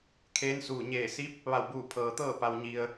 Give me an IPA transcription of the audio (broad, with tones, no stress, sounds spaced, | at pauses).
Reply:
kʰ eː˧˥ n s uː˧˩ ɲ eː˧˩ s i˧˥ p̚ | ʋ a˧˩ w b uː˧˩ pʰ ɤː˩ t̪ ɤː˥˨ p a˩ w ɲ i˩ ə̯